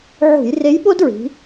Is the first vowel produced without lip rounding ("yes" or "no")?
no